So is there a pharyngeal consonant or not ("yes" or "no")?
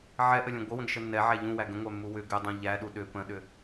yes